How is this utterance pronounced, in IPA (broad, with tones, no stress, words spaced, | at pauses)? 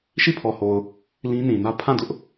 ʃi˦˨ pʰɔ˨ho˨ʊ̯ | lĩ˦nĩ˨nä˦ pʰã˦˨dʊ˦ʔ